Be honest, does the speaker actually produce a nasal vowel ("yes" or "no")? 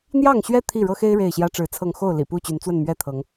no